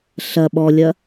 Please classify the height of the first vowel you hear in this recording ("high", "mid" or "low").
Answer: low